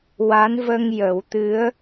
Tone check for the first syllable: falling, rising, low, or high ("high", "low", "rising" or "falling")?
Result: rising